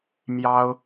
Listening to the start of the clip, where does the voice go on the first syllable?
high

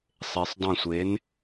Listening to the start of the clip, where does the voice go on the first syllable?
low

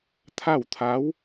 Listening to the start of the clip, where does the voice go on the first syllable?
falling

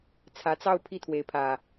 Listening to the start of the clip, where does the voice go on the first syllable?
rising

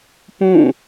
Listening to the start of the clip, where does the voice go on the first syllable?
falling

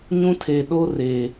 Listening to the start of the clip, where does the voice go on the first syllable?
high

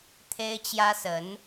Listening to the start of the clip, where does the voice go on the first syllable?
high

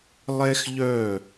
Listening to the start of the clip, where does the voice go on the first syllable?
high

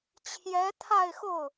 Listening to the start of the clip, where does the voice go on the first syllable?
rising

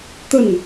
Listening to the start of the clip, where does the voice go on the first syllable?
falling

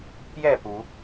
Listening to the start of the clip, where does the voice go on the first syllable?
falling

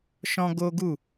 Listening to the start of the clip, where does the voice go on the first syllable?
high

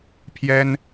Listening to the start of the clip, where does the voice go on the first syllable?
high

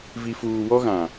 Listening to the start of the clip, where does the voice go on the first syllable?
low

